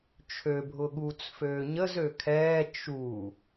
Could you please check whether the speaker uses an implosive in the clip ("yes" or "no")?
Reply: yes